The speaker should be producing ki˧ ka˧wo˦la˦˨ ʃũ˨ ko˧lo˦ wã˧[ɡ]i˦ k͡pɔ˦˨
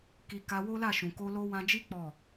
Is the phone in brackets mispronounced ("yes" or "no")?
yes